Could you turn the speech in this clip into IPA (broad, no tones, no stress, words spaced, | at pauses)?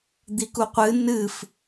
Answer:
d̪ikuqʷɨ nɨf